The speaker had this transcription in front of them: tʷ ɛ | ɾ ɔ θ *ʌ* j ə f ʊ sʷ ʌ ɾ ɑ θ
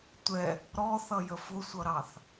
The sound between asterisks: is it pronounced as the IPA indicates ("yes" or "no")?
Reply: yes